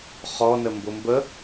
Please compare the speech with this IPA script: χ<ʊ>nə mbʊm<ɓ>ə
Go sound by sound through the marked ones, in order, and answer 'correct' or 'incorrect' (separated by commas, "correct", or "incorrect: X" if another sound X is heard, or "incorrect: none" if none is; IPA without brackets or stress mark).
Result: incorrect: ɔ, incorrect: b